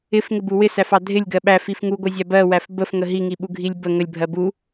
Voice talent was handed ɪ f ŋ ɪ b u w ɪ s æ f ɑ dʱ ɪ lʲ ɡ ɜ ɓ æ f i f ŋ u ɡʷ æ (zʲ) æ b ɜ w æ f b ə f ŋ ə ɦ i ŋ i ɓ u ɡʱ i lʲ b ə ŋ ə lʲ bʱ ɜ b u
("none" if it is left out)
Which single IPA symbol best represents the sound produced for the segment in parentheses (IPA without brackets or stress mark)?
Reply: zʲ